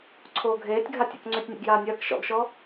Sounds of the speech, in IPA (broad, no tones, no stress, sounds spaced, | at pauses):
ǀʰ oː ɡʱ eː tʲ ɡʱ a tʲ ɔ̰ k ŋ͡ǀ ʏː tʲ nʲ ḛ ɡ j aː nʲ ɐː k ʃ ɔ̰ ɡ ʃ ɔ